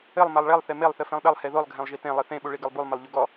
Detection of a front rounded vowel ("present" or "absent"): absent